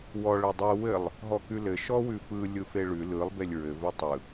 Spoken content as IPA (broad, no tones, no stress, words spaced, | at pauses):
wɔ ɭɘdˤɯ wɘlˠ | ɦɔkʉlɘ ʃɔwʉfɯ lʲɯfeɭʉ lɯlˠ belʲɹɘ vɘtˤɯ